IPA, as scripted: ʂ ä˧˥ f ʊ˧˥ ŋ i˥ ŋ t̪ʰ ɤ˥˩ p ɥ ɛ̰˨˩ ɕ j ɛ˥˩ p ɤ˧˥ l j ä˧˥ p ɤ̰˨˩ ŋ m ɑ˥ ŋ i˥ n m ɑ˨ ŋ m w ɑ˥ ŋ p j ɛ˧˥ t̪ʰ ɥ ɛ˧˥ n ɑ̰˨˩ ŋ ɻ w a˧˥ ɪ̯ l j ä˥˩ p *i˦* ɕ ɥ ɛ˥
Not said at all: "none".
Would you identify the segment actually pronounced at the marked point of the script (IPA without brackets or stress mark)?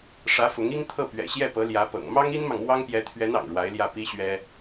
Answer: i˥